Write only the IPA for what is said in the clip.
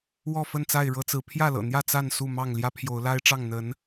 wɔ˥˨fə˥˨nt͡sa˥˨ɪ̯ ɻɤ˦t͡sɹ̩˨˦ pʰjä˥˨lɤ̰˨˩n̪jä˥˨ t͡sa˥˨n su˥˨mɑ˥˨ŋ ljä˦pʰjo˨˦ʊ̯la˦ɪ̯ʈ͡ʂɑ˥˨ŋ n̪ə˨˦n

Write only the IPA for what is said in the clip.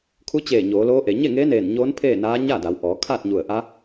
kʰu˧˥t͡ɕeː˧˩ ɲoː˩˧loː˧˥ʔe˩˧ ɲe˥˨ŋeː˧˥neː˧˩n ɲoː˧˥n pʰeː˥˨naː˧˥ ɲaː˥˨da˩˧wʔɔː˩˧ kʰaː˥˨t̚ɲu˧˩ə̯ ʔa˧˥

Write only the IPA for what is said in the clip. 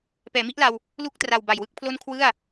pɛː˩˦mi˦˥ʔla˧w | lu˥˩k̚tra˨˩w ba˨˩jwɯ˥˩k̚pʰlo˥˩n kʰwɯ˥˩a̯

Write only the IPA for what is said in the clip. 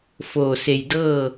foː˧˩se˧˩jdɤː˥˨

